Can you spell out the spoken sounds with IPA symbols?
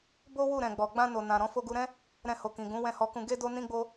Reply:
b o˦ w u˦˨ ɾ ɛ̃˨ ɡ͡b ɔ˨ ɡ͡b ã˧ n o˨ n ã˨ ɾ ɔ̃˧ f o˧ ɡ u˧ ɾ ɛ̃˦ | ɾ ɛ̃˧ h o˨ k ĩ˨ ɡ ũ˨˦ w ɛ̃˦˨ h ɔ˧ k ũ˧ ɡ e˦ d o˦ n ĩ˦ ɡ͡b o˦

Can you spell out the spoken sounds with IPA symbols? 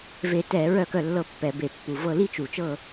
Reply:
v e˧˩˧ t ɛ˧˩˧ ɹ œ˥˨ k œ˥˨ lː ɤ˥˨ pː ɛ˧˩˧ b e˨˩ pː u˨˩ v ɤ˥˨ l i˥˨ t͡ʃ u˨˩ t͡ʃ ɤ˥˨

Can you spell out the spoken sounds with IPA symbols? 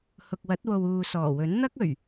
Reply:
h ʊ˨ k̚ w ɐ˨˥ t̚ w o˨ w uː˨ s ɔː˨˩ w ɵ˨˥ n n̪ ɐ˥ k̚ ɵ˨˩ ɥ

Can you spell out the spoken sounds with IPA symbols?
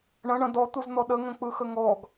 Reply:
ɳ ɐ̃ ɳ ɐ̃ d ɔ t̪ u z n̪ ɔ ɗ ə ŋ ə̃ k͡p ɯ x ə ŋ ɔ ɡ

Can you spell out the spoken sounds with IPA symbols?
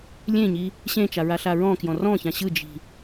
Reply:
lʲ ẽ ɲ i | ɕ ẽ t͡ʃ a ɹ a ɬ a ɹ ɔ̃ k j ɔ̃ r ɔ̃ ç ã ɕ ɯ d͡ʒ i̤

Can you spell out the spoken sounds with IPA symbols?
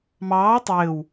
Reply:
m ɑː tˤ ɘː w

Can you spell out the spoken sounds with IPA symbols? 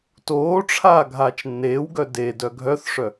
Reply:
t oː ʈ͡ʂʰ aː ɡʱ aː t͡ʃ nː eː w ɡ œ d e d œ ɡʱ œ θ ʂ œ

